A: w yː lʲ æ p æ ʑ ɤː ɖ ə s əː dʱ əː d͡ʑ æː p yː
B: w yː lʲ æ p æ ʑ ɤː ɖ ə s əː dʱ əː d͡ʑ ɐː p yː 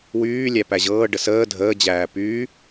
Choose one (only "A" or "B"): A